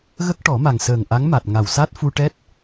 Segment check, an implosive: absent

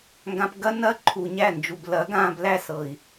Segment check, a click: present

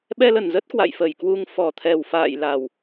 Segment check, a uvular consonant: absent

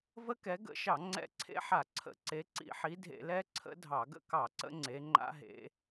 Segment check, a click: present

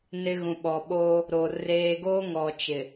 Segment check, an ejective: absent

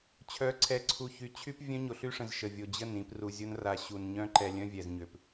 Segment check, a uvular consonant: absent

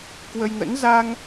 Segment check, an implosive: absent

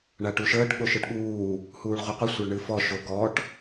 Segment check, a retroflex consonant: present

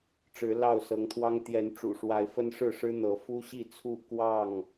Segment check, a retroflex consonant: present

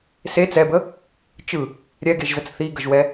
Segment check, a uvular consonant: absent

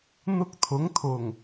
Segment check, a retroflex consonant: absent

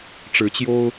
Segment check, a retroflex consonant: present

